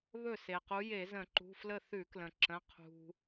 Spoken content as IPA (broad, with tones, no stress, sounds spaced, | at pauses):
β ɵ˥˩ s e˩ q u˨˦ j e˧˩˧ z ə̃˧˩˧ ǃ ṳ˩˧˩ f l ə˥˩ θ ʉ˧˩˧ k l ə̃˩ ǁ ə̃˩˧˩ qʰ ṳ˩